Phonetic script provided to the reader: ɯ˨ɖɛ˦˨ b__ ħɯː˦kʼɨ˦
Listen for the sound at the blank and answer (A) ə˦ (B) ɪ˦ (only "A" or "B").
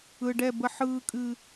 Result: A